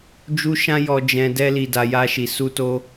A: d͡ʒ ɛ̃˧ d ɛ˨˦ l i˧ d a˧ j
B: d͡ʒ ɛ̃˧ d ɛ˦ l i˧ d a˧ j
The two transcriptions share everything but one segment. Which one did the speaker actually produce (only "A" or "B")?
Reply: B